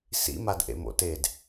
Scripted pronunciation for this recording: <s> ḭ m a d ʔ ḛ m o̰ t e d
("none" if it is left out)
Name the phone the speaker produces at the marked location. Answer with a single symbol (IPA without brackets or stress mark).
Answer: s